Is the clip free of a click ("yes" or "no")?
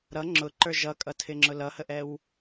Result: no